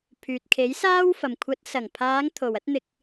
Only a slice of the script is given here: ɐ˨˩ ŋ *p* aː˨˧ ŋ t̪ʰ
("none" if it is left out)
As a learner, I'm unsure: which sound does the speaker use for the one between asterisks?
pʰ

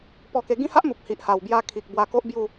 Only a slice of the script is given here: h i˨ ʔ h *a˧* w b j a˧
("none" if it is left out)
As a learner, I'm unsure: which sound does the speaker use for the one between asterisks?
a˨˩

